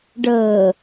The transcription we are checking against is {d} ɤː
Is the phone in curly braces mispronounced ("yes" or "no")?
yes